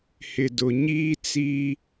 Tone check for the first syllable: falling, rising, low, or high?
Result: low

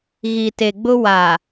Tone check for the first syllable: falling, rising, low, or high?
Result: low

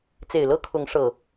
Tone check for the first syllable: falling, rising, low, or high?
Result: low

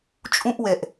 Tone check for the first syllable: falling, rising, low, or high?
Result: high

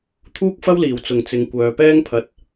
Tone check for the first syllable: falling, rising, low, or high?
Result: high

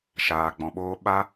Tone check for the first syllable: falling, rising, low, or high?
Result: low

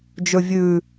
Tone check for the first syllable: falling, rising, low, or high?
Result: low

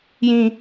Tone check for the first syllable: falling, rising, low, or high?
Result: low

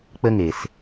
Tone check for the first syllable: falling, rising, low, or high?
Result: high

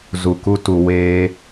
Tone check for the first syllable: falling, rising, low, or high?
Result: low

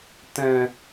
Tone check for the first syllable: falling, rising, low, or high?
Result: low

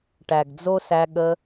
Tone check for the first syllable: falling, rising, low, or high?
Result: low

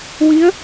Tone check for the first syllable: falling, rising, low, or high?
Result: rising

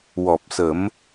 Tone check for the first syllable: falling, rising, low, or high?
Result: low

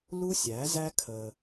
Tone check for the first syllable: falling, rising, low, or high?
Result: high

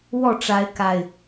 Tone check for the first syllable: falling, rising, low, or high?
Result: falling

